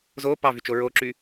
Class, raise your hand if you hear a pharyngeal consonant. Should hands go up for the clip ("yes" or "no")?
no